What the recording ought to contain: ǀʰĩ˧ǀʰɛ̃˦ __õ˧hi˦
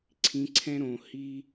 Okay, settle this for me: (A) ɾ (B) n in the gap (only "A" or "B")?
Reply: A